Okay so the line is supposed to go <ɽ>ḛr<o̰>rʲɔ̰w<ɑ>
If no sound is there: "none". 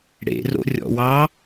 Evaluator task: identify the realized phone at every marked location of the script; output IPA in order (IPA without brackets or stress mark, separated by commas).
ɽ, o̰, ɑ